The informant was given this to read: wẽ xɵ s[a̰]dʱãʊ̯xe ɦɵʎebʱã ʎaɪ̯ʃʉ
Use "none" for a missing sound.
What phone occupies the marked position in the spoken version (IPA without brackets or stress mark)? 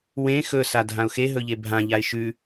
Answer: a